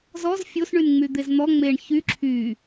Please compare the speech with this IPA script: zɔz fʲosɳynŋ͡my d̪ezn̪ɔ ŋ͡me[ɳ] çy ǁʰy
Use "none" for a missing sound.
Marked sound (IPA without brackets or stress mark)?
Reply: ɳ